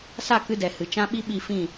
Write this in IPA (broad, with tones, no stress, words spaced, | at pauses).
sa˦˨kɨ˧dɛ˨ hɨ˨ t͡ʃã˦ ɓi˦ɓi˦˨fĩ˦˨